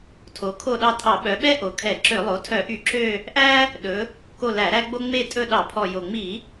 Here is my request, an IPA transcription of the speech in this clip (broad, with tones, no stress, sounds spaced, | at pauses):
tʰ o˩˧ kʰ o˦˨ ɗ ɑ˦˨ tʼ ɑ˧˩˧ ɓ œ˩˧ ɓ ɛ˦ ʔ o˩˧ kʰ ɛ˧˩˧ ǁ ø˧˩˧ lˠ o˩˥ tʰ œ˧˩˧ ʔ y˧˩˧ ǁ ø˦˨ | ʔ æ˦ | ɗ ɵ˩˧ | k o˦˨ l æ˧˩˧ ɾ æ˦ ɡ͡b o˦ ŋ͡m e˦˨ tʼ ɵ˦˨ ɗ ɑ˧˩˧ pʰ ɔ˨˩ j o˨˩ ŋ͡m i˧˩˧